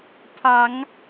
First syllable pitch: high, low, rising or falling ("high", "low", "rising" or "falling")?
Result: low